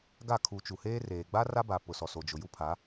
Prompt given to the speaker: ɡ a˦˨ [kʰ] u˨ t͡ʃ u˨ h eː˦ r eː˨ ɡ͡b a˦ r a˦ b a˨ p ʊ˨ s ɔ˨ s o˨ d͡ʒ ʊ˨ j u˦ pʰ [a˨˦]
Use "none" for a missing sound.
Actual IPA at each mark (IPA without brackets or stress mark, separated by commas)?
kʰ, a˨˦